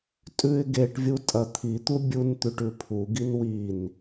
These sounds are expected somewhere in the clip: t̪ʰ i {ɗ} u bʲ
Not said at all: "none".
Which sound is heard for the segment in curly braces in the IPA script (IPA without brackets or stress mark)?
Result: t̪